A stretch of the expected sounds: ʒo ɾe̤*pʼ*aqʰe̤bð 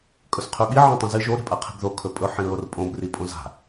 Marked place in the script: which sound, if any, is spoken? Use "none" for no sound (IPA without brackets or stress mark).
pʼ